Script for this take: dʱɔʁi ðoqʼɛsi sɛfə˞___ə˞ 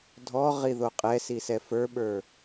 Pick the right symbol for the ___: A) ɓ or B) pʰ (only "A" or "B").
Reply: A